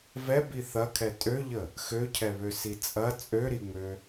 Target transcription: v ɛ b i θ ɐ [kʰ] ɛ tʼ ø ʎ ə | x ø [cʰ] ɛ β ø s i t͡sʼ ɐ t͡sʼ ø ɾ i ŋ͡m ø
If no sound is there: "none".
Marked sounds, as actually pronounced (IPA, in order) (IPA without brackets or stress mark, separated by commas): kʰ, cʰ